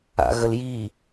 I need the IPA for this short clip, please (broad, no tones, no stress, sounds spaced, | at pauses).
a̰ ɣ ə l j i